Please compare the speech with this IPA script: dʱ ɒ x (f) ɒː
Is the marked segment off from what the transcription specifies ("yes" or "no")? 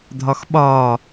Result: yes